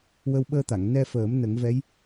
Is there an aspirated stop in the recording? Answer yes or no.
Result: no